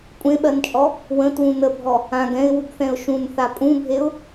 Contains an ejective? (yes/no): yes